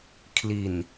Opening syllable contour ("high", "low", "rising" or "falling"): low